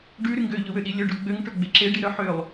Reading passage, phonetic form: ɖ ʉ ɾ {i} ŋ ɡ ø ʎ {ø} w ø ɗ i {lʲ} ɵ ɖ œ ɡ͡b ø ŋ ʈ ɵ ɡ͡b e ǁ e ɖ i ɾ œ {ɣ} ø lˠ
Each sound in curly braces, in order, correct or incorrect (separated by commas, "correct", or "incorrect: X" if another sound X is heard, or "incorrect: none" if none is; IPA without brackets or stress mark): incorrect: y, incorrect: ɵ, correct, incorrect: ħ